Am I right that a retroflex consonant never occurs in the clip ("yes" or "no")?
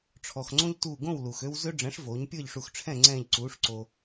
no